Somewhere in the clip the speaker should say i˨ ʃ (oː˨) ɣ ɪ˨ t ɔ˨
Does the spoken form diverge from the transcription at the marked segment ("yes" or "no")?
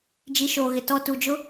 no